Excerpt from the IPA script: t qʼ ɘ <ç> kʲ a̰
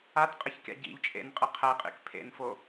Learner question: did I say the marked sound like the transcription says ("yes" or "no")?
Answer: yes